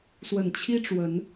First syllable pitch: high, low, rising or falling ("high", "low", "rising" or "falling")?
low